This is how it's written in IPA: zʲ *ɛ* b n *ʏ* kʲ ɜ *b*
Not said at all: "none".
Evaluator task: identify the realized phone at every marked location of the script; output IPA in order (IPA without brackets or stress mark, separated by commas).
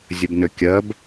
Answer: ə, ʏ, b